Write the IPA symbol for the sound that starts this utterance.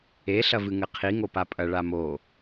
e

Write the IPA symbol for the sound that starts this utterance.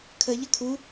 kʰ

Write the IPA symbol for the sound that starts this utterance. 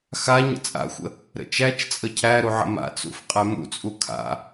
x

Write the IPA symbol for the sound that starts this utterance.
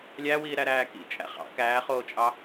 lʲ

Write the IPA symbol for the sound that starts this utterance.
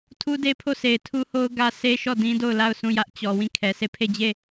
tʰ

